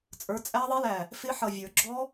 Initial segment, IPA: t͡sʼ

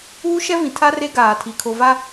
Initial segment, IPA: uː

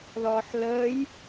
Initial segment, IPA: ð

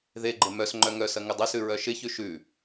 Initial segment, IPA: ð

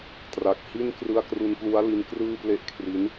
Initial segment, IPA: t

